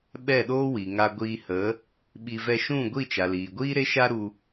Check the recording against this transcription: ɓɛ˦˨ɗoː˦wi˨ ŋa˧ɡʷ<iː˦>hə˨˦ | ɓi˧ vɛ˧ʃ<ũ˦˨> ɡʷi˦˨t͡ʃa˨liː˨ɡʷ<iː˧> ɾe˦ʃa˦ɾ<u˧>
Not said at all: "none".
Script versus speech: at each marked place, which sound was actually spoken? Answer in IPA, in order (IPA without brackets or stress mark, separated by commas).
iː˧, ũ˦˨, iː˦, u˧